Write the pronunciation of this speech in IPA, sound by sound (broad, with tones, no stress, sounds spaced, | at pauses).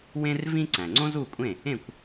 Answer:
w ẽ˥ r v ĩ˥ ǀ æ̃˩ ŋ͡ǀ õ˥ z u˥˩ kʷʼ ẽ˥˩ | ẽ˥˩ kʷ